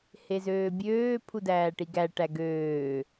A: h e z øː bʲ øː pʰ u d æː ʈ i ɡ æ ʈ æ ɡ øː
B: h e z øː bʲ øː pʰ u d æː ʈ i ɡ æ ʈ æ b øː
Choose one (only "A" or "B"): A